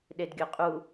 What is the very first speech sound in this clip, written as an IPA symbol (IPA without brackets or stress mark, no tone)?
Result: ɗ